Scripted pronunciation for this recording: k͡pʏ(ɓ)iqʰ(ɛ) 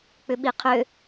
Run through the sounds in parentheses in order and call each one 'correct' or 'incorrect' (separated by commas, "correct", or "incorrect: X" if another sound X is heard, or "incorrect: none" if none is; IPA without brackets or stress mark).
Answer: correct, incorrect: ø